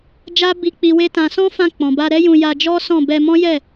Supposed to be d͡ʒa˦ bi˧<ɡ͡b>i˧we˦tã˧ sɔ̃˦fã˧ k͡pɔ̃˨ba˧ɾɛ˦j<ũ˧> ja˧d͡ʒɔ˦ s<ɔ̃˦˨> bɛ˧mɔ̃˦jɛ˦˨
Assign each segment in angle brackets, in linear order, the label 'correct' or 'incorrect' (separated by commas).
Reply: incorrect, correct, correct